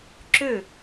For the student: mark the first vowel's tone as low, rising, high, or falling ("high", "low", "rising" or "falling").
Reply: falling